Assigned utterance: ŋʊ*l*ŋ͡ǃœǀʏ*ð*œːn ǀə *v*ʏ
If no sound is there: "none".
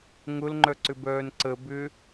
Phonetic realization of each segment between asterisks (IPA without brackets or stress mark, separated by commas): l, b, b